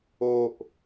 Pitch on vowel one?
low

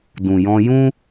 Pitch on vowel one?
low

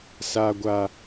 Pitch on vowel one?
high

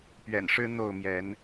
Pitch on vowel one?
low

